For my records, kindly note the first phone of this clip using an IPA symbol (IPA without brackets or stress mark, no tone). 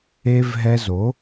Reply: e